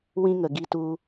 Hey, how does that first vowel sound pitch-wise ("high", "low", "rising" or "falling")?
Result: high